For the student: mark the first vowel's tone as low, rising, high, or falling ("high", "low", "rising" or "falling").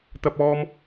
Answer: high